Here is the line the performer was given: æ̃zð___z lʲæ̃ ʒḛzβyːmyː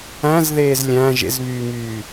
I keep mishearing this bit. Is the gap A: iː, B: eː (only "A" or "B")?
B